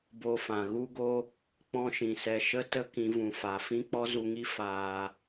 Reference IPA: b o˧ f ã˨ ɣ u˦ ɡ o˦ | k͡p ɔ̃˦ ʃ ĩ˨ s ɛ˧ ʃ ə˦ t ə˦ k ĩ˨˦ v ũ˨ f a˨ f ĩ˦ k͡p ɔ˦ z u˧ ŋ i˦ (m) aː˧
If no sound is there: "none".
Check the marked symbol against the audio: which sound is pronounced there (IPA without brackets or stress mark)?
f